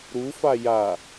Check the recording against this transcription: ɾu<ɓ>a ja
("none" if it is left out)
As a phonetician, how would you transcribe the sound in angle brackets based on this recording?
f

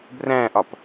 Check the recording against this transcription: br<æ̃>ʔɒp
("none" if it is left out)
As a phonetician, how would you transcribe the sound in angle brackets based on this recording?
æ̃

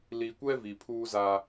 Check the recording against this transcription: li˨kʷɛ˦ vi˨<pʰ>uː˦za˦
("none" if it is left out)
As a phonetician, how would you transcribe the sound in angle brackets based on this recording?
pʰ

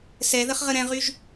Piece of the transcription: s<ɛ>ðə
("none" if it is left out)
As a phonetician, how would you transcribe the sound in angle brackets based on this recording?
ɛ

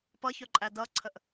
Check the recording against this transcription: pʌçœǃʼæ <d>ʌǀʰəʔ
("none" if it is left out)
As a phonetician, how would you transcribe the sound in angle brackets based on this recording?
d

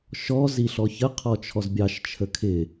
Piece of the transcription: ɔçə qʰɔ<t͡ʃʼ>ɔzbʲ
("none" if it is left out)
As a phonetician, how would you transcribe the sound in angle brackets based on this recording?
t͡ʃʰ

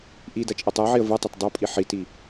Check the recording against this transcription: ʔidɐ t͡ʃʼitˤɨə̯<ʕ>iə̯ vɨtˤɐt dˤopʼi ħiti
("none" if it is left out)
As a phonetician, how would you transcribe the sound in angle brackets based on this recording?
ʕ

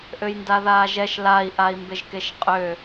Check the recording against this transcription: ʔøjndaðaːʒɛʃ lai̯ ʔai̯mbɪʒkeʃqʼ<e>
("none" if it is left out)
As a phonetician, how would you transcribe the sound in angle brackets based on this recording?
ø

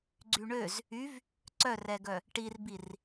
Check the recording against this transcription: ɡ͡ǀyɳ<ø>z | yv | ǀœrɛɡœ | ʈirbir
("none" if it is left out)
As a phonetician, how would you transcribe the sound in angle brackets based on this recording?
ø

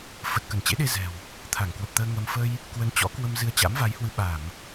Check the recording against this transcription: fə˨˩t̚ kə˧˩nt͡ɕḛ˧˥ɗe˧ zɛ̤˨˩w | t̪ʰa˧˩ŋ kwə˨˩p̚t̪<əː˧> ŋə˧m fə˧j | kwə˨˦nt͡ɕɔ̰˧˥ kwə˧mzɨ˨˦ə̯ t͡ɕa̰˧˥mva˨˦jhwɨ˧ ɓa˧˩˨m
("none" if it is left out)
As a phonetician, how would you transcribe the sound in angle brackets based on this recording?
əː˧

